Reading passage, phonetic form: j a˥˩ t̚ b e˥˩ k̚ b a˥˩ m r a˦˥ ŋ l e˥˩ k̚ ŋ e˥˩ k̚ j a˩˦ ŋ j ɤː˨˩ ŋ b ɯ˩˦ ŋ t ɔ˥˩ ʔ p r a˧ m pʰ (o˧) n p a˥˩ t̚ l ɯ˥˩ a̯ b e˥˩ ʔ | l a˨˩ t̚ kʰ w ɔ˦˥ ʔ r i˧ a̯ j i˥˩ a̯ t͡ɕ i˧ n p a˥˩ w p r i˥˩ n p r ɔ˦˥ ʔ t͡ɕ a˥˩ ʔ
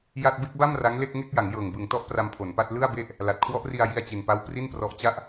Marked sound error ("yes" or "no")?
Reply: yes